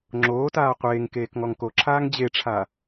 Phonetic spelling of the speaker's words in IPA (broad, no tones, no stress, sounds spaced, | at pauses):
ŋ͡ǁ oː t aː qʷ eː ŋ k eː k ŋ ɔ ŋ k o ǁʰ aː ŋ d͡ʑ e ʈ͡ʂʰ a